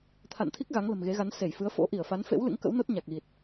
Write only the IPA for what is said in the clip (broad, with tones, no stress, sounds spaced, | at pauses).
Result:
t̪ʰ a̰˧˨ n t̪ʰ i˦˥ k̚ ɣ a˨˦ ŋ l ə̤˨˩ m ɣ e˨˦ ɣ a˨˦ n s e˧˩ j f ɨ˨˦ ə̯ f o̰˧˥ ʔ i˧˩ ə̯ f a˨˦ n f ḛ˧˥ w l ɨ̰˧˥ ŋ k ə̰˧˥ w n o˦˥ t̚ ɲ a˨˩ k̚ ɣ i˨˩ t̚